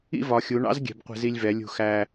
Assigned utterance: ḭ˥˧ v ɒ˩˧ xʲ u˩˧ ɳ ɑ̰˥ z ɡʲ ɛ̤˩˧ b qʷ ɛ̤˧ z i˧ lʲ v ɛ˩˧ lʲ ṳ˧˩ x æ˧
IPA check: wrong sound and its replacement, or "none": none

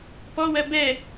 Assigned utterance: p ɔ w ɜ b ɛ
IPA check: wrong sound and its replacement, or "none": none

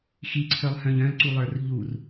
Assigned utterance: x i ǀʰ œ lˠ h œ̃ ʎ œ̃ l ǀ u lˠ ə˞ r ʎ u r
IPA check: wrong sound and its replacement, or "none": none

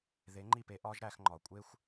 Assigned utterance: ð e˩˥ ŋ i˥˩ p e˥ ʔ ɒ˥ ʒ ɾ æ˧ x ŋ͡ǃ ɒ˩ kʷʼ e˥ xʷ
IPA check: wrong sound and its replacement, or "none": ŋ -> ŋ͡ǃ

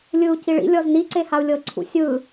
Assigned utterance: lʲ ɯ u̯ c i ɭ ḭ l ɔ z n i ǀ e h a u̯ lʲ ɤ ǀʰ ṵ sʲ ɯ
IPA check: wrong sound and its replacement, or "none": l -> lʲ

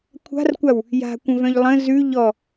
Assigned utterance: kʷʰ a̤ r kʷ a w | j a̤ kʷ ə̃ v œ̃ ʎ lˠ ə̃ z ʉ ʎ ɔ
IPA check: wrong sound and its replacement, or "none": none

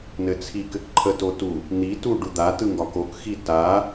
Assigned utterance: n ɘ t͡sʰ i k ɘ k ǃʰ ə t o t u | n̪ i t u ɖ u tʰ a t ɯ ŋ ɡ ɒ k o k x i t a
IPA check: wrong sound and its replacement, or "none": tʰ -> d̪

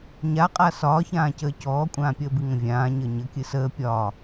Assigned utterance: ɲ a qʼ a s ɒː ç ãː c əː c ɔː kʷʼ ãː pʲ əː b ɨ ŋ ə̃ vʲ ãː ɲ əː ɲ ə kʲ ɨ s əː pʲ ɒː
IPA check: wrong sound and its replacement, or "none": none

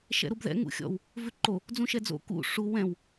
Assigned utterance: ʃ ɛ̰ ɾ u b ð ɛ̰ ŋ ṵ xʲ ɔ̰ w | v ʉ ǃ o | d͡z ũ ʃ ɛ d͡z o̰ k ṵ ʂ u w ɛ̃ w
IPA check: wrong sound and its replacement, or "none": none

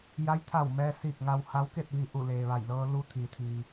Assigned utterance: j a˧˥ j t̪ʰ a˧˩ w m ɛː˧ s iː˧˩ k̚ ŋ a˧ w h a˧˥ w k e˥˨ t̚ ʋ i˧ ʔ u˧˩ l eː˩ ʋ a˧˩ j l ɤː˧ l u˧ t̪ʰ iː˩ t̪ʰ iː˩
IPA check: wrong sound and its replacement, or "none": none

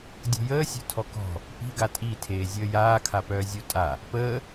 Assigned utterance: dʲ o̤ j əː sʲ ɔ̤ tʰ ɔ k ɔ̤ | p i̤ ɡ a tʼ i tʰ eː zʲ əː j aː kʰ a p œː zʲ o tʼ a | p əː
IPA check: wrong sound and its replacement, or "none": none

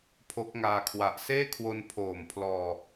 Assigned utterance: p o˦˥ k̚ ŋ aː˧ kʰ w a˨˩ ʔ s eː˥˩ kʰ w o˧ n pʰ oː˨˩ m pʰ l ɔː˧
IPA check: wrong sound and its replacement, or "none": p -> pʰ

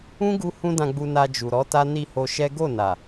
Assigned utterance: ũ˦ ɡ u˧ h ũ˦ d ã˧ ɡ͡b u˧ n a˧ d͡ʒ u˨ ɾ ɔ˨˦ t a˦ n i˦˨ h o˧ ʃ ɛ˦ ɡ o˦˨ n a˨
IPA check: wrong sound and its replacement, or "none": none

